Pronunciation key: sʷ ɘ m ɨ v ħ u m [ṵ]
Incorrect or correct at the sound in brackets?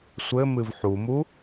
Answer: incorrect: u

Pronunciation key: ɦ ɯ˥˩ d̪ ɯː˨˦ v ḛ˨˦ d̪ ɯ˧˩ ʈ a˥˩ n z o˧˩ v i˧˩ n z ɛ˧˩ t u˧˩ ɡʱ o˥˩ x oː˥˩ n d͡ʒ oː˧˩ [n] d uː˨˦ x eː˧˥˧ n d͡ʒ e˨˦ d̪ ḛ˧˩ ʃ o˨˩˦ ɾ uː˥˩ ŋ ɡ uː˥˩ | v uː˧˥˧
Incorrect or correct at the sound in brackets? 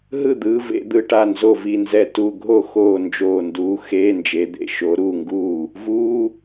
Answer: correct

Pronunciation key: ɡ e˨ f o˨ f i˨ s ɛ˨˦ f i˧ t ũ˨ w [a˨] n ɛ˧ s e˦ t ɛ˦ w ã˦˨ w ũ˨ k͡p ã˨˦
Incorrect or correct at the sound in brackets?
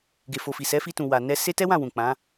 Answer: correct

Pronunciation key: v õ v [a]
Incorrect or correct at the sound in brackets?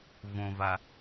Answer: correct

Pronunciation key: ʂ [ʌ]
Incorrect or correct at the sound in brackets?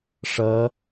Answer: correct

